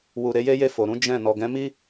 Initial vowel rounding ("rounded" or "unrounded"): rounded